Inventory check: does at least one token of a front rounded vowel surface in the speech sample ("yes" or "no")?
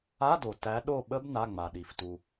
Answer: no